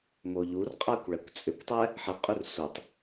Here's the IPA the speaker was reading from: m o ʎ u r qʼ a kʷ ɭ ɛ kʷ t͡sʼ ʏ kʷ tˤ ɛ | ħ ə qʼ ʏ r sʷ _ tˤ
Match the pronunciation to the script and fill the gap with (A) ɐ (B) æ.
A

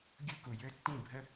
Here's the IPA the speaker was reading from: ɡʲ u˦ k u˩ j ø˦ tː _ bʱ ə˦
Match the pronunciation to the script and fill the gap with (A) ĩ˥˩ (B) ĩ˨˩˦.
A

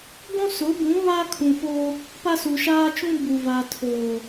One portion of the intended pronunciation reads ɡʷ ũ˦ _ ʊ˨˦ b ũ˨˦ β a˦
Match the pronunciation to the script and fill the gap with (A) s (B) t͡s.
A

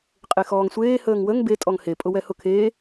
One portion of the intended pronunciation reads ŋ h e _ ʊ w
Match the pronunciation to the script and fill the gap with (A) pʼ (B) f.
A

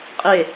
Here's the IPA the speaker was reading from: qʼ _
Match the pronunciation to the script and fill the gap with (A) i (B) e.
B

